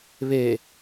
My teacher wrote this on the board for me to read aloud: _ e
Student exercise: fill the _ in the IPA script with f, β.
β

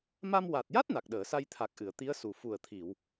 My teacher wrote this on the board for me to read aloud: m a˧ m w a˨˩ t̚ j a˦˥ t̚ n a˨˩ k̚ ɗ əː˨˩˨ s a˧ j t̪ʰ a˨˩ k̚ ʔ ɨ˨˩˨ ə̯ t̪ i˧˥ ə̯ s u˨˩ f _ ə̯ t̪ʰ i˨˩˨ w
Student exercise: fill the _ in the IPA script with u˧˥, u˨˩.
u˨˩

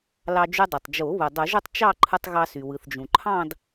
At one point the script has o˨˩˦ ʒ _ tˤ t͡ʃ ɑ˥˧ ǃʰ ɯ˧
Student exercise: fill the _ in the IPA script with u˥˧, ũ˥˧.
u˥˧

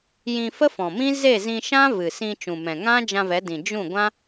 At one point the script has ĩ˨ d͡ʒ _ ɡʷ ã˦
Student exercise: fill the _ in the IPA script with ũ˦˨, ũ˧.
ũ˦˨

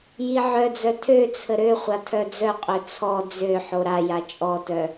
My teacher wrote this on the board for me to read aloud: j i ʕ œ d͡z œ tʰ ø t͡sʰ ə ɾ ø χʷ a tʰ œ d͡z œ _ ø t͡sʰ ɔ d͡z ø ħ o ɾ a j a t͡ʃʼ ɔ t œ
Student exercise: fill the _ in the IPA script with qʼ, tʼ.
qʼ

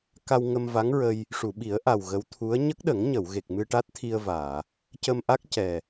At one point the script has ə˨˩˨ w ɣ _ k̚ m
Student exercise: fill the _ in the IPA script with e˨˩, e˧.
e˨˩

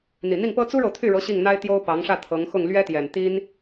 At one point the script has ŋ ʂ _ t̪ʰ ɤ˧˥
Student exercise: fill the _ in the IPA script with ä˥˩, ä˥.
ä˥˩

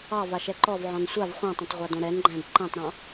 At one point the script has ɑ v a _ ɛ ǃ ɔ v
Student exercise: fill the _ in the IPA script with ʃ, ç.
ʃ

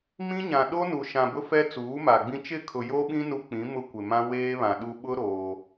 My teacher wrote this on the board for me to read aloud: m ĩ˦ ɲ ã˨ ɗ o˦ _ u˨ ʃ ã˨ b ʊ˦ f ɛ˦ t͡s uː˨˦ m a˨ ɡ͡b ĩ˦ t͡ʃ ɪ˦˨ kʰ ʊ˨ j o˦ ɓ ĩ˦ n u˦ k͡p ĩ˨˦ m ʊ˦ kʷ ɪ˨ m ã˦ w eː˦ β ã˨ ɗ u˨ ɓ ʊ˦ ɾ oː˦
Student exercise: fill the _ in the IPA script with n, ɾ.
n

